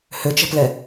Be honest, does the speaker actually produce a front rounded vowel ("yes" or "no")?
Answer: yes